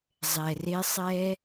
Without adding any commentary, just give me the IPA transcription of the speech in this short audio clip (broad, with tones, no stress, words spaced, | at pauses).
zˤɛ˨re˧ sˤɛ˧